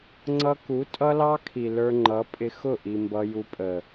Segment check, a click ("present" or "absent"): present